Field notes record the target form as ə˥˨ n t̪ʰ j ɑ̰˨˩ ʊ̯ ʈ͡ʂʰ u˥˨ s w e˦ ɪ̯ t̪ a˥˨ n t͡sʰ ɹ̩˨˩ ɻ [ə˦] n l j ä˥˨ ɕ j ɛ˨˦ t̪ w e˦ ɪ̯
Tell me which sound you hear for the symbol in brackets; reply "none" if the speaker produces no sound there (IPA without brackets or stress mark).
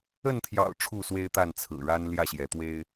a˦